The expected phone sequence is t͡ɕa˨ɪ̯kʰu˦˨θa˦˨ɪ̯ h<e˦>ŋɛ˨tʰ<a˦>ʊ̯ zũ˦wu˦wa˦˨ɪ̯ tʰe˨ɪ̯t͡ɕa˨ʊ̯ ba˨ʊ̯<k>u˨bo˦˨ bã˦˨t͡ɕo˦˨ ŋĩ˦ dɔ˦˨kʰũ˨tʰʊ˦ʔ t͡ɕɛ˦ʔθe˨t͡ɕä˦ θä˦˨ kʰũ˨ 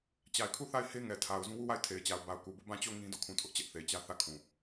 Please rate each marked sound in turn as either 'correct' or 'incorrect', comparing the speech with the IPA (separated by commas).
correct, incorrect, correct